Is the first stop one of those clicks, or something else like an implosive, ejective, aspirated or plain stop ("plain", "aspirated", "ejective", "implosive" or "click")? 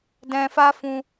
plain